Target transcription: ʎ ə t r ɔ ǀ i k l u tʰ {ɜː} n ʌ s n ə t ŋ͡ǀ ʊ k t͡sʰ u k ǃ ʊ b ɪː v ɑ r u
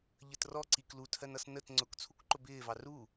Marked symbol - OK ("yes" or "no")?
no